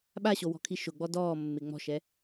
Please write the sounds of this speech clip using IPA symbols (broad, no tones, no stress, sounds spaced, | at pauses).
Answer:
ɓ a ɕ o w ɔ̤ kʰ i ʃ ʊ ɡ͡b ɔ d ɔː mː ɪ ŋ͡m ɔ̤ ʃ ɛ